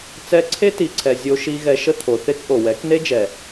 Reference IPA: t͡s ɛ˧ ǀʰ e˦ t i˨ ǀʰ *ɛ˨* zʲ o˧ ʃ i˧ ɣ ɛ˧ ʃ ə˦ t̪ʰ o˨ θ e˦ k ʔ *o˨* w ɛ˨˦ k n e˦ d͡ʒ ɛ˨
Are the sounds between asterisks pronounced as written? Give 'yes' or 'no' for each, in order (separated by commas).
yes, yes